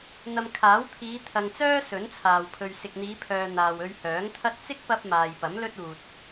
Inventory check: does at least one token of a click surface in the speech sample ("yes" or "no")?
no